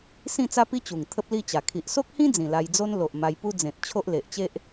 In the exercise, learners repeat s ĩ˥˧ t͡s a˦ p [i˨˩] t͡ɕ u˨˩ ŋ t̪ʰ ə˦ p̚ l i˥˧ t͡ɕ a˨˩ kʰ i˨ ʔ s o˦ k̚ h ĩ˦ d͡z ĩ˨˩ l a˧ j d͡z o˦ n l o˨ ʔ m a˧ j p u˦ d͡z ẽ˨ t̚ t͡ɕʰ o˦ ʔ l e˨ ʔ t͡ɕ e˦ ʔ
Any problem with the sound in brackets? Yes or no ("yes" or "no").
yes